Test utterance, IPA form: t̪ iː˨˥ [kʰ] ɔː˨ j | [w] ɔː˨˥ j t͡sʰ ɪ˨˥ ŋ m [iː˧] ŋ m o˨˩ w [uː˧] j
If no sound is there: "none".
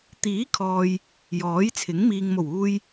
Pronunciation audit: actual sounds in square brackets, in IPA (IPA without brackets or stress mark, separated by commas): kʰ, j, iː˨, uː˧